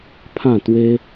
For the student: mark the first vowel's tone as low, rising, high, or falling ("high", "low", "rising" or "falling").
falling